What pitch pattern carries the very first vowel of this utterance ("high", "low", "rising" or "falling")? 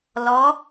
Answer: rising